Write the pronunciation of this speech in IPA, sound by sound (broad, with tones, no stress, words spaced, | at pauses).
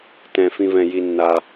tɛ̃˩ fĩ˩vɛ̃˩ ji˩nːa˩